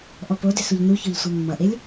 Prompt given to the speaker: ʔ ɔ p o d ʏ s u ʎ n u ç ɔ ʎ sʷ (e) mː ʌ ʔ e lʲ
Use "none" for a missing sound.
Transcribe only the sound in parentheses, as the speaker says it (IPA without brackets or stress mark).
e